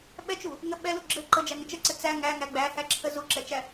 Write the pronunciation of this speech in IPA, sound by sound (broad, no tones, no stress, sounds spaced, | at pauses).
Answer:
ɓ ɛ t͡ʃ u | ŋ ə ɓ ɛ l u ɡ͡ǁ ɘ ǃ ə d͡ʒ æ ŋ ɘ t͡ʃ ə ǀ ɘ t͡s æ ŋ æ ŋ æ ɡ͡b æ h æ ǁʰ ə z u ǁ ɛ t͡ʃ æ